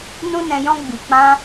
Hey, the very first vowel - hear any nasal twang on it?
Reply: yes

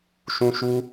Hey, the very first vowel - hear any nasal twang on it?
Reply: yes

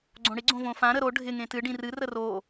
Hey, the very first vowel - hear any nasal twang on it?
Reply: yes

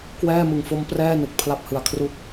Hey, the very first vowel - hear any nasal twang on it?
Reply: no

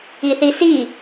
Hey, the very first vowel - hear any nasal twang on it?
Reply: no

